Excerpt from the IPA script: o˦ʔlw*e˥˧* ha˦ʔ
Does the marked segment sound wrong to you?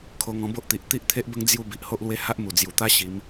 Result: yes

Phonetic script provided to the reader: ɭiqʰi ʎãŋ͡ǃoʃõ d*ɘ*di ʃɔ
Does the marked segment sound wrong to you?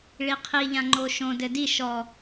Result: no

